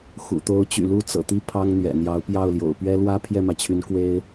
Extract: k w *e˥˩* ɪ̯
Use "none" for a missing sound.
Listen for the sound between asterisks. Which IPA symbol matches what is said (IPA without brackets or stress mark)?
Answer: e˥